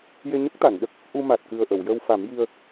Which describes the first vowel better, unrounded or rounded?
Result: unrounded